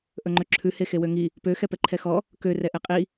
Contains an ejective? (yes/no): yes